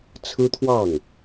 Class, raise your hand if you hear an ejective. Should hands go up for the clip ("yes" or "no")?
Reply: no